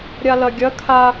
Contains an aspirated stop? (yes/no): yes